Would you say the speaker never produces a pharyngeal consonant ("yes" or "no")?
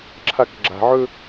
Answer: no